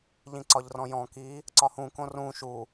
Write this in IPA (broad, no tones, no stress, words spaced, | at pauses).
ʎĩǀɒʎrɔ̃jɔ̃ ki | ǀɒhũ kõrũ ʃu